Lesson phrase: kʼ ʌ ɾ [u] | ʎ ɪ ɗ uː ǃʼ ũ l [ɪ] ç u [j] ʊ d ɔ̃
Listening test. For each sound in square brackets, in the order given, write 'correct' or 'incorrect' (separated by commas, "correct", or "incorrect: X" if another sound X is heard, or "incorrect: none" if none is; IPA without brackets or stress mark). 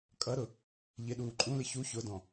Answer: incorrect: ʊ, correct, incorrect: ç